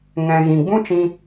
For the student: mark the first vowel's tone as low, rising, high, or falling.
low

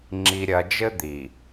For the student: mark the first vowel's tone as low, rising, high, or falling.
low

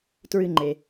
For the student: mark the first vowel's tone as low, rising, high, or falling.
low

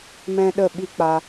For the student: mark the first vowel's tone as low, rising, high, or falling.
high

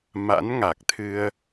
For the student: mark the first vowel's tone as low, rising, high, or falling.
rising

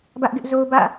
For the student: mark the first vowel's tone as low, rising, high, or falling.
high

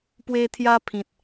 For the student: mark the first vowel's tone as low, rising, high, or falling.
high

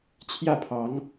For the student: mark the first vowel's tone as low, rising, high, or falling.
falling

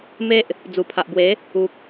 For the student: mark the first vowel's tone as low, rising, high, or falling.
high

